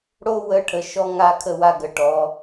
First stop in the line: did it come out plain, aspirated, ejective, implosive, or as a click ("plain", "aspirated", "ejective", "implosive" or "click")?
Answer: aspirated